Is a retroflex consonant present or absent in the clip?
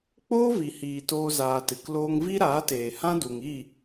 absent